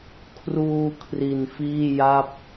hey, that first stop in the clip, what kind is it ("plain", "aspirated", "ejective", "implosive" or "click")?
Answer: aspirated